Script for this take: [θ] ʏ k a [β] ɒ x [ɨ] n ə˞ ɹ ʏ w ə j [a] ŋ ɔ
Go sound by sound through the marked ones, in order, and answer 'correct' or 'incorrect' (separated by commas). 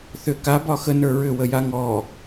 correct, incorrect, incorrect, correct